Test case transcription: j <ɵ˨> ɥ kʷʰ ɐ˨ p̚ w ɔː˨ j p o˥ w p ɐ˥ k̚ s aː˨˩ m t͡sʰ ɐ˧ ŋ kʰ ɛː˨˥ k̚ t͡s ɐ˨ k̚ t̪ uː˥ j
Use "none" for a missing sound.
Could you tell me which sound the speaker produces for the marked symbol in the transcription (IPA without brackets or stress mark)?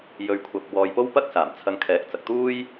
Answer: ɵ˨